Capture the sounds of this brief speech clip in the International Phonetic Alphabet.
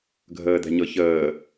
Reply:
ɡʱ əː d̪ ɛ̤ ɲ ɤ ç əː

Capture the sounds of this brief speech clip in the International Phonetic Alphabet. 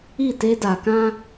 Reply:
i˦˨ t e˦ d a˨ k ã˦

